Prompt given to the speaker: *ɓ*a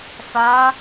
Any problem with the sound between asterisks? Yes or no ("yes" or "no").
yes